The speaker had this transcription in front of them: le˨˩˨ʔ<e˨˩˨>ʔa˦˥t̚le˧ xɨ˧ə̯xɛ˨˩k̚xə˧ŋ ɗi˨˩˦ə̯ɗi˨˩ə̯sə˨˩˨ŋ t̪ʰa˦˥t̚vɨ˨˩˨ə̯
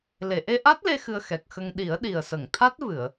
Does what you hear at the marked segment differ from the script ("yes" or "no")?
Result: yes